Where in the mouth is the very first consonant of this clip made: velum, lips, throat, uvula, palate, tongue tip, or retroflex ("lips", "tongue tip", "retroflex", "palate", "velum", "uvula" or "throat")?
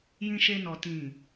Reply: palate